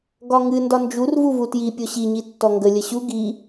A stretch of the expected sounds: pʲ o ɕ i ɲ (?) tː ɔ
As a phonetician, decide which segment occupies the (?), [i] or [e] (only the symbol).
i